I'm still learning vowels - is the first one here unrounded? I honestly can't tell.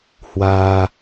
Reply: yes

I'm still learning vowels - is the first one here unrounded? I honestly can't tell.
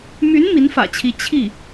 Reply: no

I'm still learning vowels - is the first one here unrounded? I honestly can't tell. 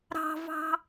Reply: yes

